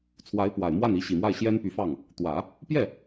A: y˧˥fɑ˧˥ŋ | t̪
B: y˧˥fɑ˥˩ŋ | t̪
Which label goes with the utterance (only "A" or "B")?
B